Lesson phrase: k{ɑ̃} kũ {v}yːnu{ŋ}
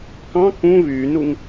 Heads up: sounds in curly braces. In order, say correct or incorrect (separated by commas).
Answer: correct, correct, correct